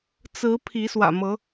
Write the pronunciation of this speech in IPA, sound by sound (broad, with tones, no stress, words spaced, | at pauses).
t͡sɹ̩˨˦ pʰi˨˦swä̰˨˩mɤ˨˦